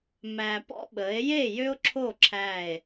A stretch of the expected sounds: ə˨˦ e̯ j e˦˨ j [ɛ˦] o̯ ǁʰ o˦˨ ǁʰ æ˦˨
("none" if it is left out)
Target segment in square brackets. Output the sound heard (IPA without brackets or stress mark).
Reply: ø˦